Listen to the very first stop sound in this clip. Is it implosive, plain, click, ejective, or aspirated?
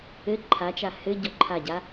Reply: click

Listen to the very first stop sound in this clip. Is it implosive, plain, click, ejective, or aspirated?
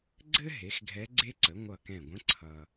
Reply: click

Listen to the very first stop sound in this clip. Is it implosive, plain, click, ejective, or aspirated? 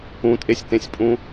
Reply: ejective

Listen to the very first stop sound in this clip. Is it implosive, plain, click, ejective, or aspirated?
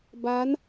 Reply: plain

